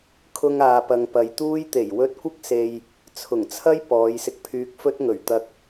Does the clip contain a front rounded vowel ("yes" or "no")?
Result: yes